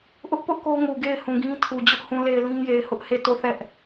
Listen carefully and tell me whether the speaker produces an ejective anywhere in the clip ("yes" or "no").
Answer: no